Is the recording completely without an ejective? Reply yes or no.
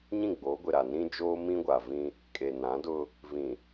no